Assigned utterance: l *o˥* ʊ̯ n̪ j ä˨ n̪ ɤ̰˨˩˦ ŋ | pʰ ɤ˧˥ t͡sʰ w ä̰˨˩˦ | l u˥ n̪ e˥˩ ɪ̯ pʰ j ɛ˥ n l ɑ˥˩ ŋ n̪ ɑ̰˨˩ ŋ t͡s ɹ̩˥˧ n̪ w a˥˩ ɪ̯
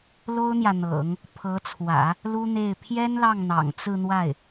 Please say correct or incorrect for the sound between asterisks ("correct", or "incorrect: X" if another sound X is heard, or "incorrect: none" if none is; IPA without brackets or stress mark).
correct